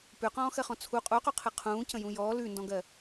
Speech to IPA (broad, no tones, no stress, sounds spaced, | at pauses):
p ʉ q ɔ̃ː x ɜ χ ɔ̃ t͡sʰ u qʼ u q u qʰ ɨ qʰ ũː c ə̃ j ũ j ɔː l ʉ n d ɔ̃ ɡ ɜ